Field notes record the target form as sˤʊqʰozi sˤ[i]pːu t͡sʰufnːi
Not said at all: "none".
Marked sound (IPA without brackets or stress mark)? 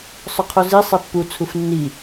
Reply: e